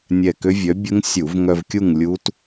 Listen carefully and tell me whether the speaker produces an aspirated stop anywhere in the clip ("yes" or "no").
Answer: no